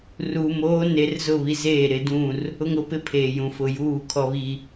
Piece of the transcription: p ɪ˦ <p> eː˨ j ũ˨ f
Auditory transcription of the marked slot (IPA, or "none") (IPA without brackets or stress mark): pʰ